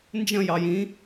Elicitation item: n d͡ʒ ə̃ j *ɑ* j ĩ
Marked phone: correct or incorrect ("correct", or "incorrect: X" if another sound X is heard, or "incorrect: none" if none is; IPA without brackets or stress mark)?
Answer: correct